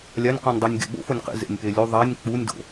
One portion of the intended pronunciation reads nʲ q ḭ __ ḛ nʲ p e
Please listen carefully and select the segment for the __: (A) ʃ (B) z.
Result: B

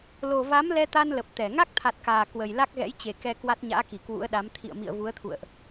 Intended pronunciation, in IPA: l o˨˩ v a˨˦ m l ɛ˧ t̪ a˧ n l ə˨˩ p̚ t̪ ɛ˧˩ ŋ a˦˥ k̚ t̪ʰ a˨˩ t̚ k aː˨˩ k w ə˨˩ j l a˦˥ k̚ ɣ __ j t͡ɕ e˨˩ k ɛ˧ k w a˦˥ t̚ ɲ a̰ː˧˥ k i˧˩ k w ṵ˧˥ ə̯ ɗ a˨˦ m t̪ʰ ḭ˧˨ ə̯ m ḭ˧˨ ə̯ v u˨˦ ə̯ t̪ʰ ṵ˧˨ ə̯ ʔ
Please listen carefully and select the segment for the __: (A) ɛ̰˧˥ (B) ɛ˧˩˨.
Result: A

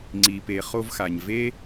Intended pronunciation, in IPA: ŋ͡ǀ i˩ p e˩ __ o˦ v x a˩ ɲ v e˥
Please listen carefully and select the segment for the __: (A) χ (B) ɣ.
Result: A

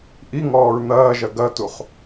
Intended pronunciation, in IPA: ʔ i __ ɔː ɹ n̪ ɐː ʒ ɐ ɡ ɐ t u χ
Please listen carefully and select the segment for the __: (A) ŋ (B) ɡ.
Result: A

